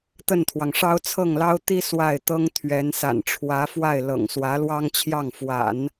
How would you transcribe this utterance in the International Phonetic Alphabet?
t̪ ə˥˩ n t̪ʰ w ɑ˩ ŋ ʂ ɑ˥ ʊ̯ t͡sʰ ɤ˥˩ ŋ l ɑ˥ ʊ̯ t̪ i˥ s w a˥˩ ɪ̯ t̪ ɤ˥ ŋ t̪ʰ ɥ ɛ˧˥ n s a̰˨˩ n ʈ͡ʂʰ w ä˧˥ f w a˥˩ ɪ̯ l ɤ̰˨˩ ŋ s w ä˧˥ l w ɑ˥ ŋ t͡ɕʰ j ɑ˥˩ ŋ f w a̰˨˩˦ n

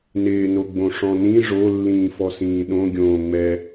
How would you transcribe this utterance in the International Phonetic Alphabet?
n ɪː n o ɡ͡b õ ʂ ɔ̃ n ĩ ʐ o lː ĩː f ɔ s ĩː ɗ õ ɡʲ õː ŋ͡m ɛ

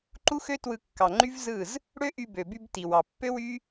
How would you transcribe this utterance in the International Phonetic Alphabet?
ǃ u˦ x ø˦ t w ɯ˧ kː ɑ˨ ŋ͡ǃ y˦ v z ɯ˦˨ z | ɽ ø˦ ʔ y˧ b ø˨ b y˧ b t i˨ w ɑ˨ pː ø˦ w y˦

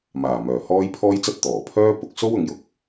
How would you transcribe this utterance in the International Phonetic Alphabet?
m aː˨˩ m œː˨˩ h ɔː˥ j pʰ ɔː˥ j t͡s ɐ˥ t̚ t̪ ɔː˨˩ pʰ œː˥ p ʊ˧ k̚ s o˥ w ʊ˨˧ ŋ j ʊ˧ k̚

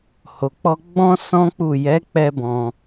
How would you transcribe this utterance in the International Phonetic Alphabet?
h o˨ k͡p ɔ˧ ɡ͡b ɔ̃˦ s ɔ̃˦ k͡p u˦˨ j ɛ˨˦ k͡p ɛ˧ b ɔ̃˧

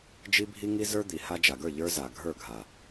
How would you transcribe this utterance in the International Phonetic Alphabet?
d͡ʒ i˦ bʱ i˦ ŋ i˦ z ə˞˦ d̪ i˨ h a˧ d͡ʒ a˨ ɡ ə˞˦˨ ʎ ə˞˦ z a˨ ɡʱ ə˞˦˨ ɡʱ a˨

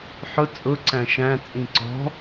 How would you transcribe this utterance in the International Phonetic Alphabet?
ħ ʊ t͡sʼ ʊ ǀ æ̃ ʃ æ̃ t͡sʼ ĩ ǀ ɔ̤

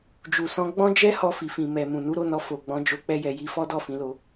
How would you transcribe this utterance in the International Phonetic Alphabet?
d͡ʒ u˨ s ɔ̃˧ ɡ͡b ɔ̃˦ d͡ʒ ɛ˦ h ɔ˧ f i˨ f ĩ˨ m ɛ˨ m ũ˨ n u˨˦ ɾ o˦˨ n ɔ˧ f o˨ ɡ͡b ɔ̃˨˦ d͡ʒ o˧ k͡p ɛ˦ j ɛ˧ j i˧ f ɔ˦ d ɔ˦˨ f ĩ˨˦ l o˧

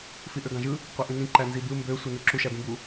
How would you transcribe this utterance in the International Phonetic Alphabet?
f i ʔ ø ɡ ɑ̃ ʒ ɯ | qʷ e ʔ ĩ n ĩ ǃ æ n z i b ɯ m b ø sʷ e n u ǁ u ʃ æ b ĩ b u

